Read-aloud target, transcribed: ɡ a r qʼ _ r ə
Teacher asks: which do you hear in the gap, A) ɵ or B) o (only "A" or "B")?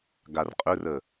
A